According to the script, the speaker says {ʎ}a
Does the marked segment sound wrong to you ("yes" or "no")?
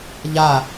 no